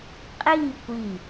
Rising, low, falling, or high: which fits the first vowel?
falling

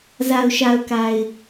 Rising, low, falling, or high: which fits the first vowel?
low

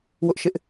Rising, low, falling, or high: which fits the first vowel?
high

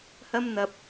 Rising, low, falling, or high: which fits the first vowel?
high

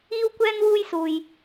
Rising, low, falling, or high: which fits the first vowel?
high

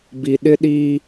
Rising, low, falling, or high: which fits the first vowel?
low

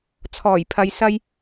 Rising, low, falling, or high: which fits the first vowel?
low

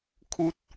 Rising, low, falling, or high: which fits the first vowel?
high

